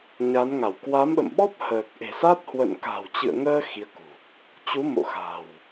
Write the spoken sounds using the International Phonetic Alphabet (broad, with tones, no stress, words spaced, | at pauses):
ɲa˨˦nŋa˧˩w kwa˨˦mɓə̰˧˨mɓɔ˦˥p̚ həː˨˩k̚ʔe̤˨˩sa˦˥t̚ hwə̰˧˨nka̤˨˩wt͡ɕɨ̰˧˨ə̯ŋəː˧ xi˨˦ə̯kṳ˨˩ | t͡ɕu˨˦mo̰˧˨ xa̤˨˩w